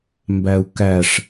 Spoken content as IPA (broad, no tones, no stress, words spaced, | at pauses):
mbæu̯kæʂ